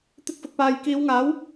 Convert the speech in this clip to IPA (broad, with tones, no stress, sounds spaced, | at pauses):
t̪ ɪ˧ k̚ f ʊ˨ k̚ p aː˨ j k iː˨˧ w ŋ aː˨˥ w